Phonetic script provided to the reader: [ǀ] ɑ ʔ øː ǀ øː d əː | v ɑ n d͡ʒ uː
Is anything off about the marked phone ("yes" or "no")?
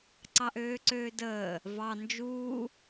no